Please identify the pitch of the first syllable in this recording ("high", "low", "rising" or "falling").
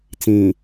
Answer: low